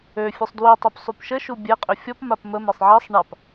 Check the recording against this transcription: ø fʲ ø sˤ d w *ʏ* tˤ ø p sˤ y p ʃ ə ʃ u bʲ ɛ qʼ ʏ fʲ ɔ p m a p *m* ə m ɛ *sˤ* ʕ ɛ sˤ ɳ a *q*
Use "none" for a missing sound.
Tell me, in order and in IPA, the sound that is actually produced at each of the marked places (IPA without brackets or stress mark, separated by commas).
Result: y, m, sˤ, p